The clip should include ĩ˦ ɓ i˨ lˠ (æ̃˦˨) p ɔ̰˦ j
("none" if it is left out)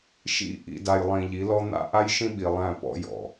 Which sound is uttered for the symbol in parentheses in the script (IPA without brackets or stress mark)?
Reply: æ̃˦˨